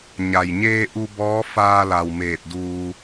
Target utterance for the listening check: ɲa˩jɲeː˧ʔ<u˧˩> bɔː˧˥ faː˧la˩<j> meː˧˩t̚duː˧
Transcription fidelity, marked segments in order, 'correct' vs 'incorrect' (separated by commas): incorrect, incorrect